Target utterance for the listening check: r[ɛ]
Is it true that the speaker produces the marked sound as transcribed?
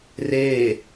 no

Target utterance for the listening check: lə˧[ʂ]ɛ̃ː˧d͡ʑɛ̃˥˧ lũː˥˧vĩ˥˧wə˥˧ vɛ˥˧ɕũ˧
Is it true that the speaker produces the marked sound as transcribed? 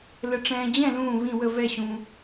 no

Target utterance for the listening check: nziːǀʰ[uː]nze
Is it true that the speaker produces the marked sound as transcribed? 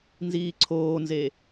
no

